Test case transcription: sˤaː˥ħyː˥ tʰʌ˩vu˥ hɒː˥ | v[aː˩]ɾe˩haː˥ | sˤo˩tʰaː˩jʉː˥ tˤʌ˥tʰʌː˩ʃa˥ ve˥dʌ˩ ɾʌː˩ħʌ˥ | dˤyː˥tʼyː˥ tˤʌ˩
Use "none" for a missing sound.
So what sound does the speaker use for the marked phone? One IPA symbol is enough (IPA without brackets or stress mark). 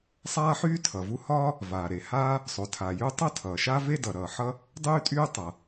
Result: aː˩